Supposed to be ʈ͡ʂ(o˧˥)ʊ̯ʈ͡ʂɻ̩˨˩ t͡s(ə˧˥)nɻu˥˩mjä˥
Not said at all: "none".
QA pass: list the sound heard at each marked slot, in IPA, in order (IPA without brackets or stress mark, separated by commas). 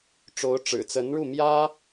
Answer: o˧˥, ə˧˥